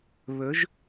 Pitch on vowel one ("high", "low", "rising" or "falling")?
rising